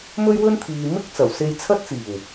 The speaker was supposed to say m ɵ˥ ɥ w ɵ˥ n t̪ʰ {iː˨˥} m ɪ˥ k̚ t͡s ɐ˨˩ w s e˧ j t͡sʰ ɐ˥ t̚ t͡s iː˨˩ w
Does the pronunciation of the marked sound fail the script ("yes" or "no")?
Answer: yes